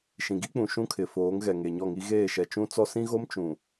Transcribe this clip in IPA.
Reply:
ʃ ĩ˨ ɡ i˦ k͡p ũ˨ ʃ ũ˦ kʰ ɪ˨ f oː˨˦ ŋ ɣ ɛ˨ ŋ e˨ ɲ ɔ˦˨ ŋ i˦ ɣ eː˦˨ ʃ ɛ˨ t͡ʃ ũ˦ t͡s ɔ˦ s ĩ˦ ɣ o˦ m t͡ʃ ũ˨

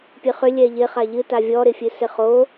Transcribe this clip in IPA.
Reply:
pʲ ɨ χ ʏ lʲ ɛ ʎ ɪ χ a ʎ ɨ t a vʲ ɔ ɾ ɪ fʲ ɨ s ɪ χ o

